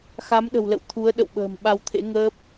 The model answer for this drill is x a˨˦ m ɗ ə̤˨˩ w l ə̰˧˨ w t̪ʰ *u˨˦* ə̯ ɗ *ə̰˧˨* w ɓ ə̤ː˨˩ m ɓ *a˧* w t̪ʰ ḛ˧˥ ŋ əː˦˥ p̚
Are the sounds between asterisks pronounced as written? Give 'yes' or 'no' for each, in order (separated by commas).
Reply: yes, yes, yes